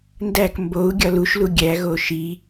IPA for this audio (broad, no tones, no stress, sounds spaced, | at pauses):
n d æ k m b o u̯ ɡʲ ɒ l u ʃ l u ɡʲ æ ɣ o ʃ i